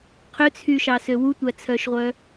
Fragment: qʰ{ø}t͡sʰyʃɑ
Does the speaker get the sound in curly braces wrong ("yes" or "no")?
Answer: no